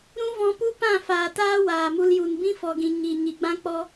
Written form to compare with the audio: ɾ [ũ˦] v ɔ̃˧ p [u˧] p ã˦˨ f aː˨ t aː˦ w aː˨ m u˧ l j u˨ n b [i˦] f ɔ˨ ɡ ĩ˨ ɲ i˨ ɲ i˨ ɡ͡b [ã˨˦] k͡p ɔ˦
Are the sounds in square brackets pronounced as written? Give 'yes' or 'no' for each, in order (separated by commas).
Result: yes, no, no, no